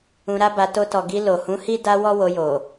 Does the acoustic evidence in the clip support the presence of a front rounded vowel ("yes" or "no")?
no